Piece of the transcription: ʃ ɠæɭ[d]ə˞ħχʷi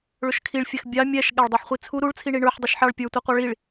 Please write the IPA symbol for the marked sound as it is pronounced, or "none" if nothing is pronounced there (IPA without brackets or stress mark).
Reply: dˤ